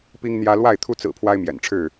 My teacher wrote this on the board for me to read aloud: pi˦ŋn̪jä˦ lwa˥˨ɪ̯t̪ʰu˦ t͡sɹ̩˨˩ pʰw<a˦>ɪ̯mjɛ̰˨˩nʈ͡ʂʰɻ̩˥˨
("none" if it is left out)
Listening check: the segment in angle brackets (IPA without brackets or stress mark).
a˦